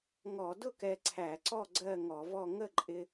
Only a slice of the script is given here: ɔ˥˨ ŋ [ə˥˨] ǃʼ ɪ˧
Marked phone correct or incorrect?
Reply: correct